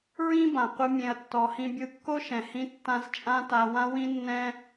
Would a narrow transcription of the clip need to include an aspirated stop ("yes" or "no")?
no